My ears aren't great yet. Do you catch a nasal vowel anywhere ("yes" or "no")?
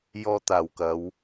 no